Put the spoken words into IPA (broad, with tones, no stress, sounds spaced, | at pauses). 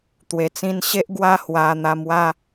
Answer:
t̪ w e˨˩ t͡s ĩ˧ n ɕ e˦ ʔ ɡ w a˦ h w a˧ n̪ a˧ m w a˦